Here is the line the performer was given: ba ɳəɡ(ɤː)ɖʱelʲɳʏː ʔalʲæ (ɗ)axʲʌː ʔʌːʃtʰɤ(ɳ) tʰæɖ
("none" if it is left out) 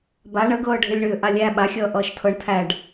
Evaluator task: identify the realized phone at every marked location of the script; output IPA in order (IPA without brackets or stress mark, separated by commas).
ɤː, ɓ, ɳ